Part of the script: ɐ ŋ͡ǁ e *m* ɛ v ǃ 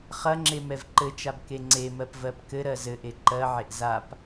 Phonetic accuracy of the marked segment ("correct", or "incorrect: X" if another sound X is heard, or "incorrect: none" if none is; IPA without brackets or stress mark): correct